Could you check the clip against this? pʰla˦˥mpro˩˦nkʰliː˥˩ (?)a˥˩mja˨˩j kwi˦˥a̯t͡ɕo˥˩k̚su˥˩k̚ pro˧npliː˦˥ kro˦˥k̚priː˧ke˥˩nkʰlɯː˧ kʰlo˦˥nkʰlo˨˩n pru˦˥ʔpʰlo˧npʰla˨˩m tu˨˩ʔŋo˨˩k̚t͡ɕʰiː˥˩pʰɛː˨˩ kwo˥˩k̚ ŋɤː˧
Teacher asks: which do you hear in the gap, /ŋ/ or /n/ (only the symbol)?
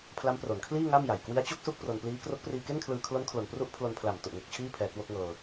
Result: ŋ